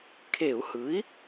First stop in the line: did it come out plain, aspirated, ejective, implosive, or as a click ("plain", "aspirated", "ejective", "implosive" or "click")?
aspirated